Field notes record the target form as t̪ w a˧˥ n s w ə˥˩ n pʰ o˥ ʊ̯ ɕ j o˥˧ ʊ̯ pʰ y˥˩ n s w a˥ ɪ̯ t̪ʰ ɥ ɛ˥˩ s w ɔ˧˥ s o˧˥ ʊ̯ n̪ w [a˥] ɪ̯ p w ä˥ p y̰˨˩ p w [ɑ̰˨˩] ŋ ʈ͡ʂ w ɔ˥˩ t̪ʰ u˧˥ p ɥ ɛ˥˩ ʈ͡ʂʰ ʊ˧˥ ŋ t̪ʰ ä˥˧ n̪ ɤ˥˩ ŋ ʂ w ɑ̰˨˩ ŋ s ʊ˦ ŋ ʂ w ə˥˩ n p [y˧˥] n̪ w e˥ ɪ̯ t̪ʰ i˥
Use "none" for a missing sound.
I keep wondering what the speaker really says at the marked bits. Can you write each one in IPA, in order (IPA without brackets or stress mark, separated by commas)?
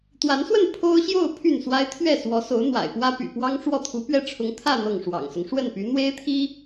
a̰˨˩, ɑ˥, y˧˥